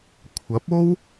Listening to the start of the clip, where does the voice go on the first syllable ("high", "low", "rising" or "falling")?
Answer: rising